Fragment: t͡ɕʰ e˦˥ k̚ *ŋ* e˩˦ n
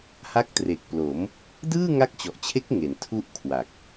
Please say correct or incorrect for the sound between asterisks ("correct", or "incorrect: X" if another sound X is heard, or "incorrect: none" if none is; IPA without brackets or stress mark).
correct